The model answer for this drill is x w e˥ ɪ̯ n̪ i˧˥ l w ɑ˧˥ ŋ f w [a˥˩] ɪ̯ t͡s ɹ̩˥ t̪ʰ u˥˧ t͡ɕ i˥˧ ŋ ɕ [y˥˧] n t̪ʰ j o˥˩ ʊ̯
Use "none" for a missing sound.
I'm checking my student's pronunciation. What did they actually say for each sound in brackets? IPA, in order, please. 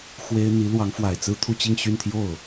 a˨˩, y˥˧

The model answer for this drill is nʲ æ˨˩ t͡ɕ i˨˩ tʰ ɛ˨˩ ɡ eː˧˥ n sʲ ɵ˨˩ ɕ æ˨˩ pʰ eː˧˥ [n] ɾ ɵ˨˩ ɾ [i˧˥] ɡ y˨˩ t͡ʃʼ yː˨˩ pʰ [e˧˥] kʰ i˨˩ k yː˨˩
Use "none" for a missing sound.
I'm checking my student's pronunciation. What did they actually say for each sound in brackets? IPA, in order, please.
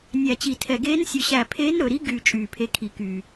n, i˧˥, e˧˥

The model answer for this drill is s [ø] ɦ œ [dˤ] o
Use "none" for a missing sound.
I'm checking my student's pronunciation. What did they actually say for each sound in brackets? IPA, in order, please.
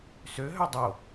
ø, dˤ

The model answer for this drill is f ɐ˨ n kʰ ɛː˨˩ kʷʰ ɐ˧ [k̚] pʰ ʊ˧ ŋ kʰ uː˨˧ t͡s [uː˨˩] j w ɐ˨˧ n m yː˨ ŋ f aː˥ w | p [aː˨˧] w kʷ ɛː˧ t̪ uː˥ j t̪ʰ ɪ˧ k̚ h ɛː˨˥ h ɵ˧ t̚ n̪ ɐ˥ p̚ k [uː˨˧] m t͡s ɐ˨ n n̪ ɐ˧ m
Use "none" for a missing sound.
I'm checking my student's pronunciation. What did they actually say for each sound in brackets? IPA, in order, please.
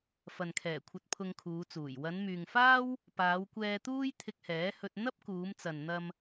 t̚, uː˨˩, aː˨˧, uː˨˧

